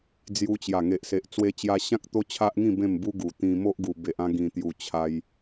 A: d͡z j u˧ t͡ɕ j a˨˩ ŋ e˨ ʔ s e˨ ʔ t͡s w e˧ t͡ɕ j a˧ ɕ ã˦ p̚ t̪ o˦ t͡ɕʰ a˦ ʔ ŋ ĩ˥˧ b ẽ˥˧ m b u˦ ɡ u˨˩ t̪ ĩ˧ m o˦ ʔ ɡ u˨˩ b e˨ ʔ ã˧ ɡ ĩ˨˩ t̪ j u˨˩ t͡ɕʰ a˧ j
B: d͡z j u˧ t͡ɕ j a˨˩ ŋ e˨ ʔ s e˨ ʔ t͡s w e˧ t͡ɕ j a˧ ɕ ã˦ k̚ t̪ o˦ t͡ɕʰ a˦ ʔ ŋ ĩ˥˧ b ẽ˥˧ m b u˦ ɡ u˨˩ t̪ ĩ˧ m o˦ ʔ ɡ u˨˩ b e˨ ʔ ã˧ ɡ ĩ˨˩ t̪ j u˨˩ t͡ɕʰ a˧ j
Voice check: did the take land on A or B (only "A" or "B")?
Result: B